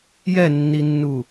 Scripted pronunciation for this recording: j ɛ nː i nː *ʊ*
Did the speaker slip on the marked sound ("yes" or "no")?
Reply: yes